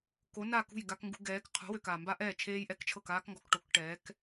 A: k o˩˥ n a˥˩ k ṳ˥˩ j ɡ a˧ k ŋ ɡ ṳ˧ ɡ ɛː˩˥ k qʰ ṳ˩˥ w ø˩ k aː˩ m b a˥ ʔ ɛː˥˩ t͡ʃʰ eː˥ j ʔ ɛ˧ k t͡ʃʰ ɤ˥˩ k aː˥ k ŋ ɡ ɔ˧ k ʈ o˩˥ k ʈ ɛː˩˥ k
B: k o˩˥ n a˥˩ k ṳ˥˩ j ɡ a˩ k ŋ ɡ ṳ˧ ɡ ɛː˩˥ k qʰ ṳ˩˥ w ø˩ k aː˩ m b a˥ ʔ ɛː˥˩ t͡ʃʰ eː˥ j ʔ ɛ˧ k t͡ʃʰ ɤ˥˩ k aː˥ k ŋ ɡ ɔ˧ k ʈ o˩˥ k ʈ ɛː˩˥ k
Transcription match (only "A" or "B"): A